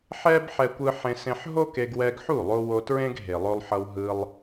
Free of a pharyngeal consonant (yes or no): no